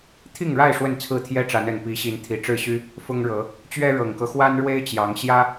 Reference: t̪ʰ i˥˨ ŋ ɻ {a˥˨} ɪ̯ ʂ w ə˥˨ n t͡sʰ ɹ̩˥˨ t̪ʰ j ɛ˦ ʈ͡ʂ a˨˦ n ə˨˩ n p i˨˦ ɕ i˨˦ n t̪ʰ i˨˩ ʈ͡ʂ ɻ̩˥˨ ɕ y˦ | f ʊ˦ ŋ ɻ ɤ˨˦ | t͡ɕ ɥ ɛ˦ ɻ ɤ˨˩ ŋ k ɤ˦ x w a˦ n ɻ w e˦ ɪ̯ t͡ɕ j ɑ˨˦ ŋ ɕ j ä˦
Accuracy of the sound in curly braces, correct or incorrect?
correct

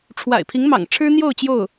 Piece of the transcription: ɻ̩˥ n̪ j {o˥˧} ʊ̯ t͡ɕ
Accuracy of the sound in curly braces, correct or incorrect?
correct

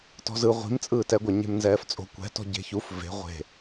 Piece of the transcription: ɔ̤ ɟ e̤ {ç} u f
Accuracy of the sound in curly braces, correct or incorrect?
correct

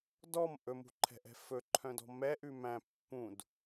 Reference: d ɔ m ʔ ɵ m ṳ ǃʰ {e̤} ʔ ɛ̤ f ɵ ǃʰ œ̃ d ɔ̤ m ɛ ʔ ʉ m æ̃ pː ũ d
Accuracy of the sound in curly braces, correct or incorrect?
incorrect: ɛ̤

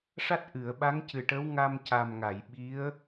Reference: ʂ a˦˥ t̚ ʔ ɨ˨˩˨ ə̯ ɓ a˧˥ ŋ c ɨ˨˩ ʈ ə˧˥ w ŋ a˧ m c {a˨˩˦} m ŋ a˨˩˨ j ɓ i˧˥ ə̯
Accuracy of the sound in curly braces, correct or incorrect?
incorrect: a˨˩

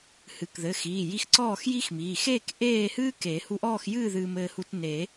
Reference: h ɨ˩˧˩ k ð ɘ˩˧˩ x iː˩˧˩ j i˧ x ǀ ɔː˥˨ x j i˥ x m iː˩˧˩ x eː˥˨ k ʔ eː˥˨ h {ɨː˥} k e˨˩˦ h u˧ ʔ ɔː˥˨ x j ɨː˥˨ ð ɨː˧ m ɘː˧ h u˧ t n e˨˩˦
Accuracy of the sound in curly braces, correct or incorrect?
correct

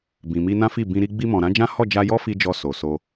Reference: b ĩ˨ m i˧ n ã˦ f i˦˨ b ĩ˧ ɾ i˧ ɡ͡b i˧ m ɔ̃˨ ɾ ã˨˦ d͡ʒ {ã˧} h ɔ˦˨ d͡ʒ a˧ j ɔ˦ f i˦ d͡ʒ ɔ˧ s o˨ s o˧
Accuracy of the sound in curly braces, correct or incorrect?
incorrect: ã˦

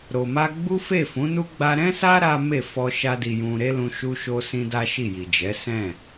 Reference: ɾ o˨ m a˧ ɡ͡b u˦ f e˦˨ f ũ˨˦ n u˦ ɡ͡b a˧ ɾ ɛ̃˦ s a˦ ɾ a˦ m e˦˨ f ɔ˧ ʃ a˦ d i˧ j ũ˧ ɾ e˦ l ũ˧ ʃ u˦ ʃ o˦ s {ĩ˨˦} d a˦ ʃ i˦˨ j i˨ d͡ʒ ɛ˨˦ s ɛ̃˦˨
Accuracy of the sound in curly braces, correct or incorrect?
incorrect: ĩ˦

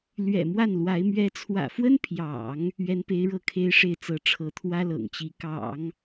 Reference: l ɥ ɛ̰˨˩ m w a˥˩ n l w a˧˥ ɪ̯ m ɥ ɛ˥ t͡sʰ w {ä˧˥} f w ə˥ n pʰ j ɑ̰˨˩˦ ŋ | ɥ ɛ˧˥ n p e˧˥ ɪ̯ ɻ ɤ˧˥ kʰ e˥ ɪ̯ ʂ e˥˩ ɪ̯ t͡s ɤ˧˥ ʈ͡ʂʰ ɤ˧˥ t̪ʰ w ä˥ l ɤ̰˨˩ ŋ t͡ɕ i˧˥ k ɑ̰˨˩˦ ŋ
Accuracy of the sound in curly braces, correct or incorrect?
incorrect: ä̰˨˩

